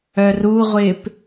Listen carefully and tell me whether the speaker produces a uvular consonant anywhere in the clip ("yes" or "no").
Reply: yes